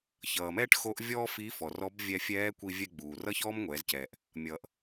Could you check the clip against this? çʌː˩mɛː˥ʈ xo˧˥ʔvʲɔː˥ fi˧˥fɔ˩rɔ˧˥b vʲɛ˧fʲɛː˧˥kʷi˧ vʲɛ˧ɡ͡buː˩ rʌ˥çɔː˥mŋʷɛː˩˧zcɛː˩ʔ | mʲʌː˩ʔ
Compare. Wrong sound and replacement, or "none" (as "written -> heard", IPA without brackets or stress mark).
none